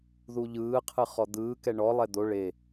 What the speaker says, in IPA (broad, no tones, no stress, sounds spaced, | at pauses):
ð u ʎ ɯː qʰ ɯ χ ɔ d̪ ɯː k ɛ ɳ ɔ lˠ ɛ d̪ o ɭ e